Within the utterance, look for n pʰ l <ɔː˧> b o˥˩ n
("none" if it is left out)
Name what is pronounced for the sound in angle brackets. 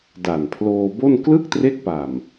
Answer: oː˧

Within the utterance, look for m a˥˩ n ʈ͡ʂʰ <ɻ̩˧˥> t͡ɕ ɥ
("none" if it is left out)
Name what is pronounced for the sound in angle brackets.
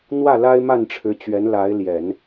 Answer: ɻ̩˧˥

